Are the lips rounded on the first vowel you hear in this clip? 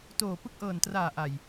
yes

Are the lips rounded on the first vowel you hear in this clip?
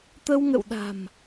no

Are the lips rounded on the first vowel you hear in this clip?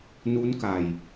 yes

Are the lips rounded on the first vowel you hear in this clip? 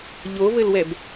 yes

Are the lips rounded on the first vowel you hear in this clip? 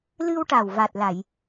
no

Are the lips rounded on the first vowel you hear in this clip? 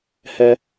no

